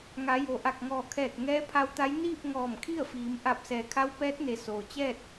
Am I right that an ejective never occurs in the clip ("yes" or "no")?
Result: yes